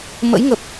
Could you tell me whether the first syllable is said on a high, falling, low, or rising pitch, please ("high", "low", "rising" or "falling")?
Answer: rising